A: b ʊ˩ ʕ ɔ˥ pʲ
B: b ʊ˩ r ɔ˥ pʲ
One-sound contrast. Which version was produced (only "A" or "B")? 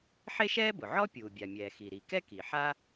A